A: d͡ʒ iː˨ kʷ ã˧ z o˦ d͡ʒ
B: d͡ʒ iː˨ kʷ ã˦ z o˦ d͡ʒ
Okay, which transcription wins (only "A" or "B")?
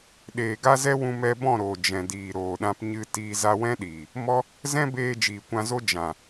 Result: A